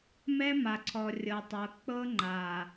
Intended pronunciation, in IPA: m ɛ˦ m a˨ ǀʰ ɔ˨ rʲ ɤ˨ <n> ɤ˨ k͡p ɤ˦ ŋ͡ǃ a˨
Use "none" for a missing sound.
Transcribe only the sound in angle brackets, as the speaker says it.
tˤ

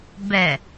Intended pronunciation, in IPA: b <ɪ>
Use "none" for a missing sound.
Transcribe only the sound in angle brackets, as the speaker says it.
ɛ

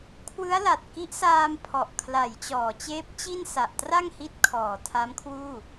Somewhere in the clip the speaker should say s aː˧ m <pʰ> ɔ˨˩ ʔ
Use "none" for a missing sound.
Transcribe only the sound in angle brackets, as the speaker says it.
pʰ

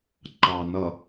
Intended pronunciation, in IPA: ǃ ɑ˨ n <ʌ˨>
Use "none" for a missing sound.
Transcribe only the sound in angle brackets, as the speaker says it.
ʌ˨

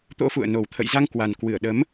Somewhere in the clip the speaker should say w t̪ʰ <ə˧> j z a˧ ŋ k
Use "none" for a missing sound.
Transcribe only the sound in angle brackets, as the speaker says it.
ə̰˧˨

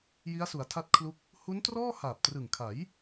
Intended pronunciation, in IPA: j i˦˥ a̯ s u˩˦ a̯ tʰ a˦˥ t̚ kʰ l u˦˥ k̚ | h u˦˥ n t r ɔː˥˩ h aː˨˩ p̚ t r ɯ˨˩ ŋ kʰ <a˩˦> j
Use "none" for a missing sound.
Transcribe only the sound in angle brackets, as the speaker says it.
a˩˦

